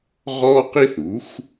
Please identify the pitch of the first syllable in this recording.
high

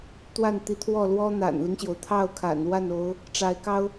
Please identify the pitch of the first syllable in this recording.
falling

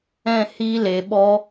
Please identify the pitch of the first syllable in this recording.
high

